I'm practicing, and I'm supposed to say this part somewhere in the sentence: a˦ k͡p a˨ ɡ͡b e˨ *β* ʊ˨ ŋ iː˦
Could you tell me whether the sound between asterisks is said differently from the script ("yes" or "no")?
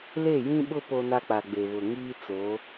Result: no